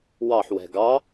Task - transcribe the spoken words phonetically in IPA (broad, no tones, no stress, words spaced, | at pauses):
wɑħ wɛ̤ɡɑ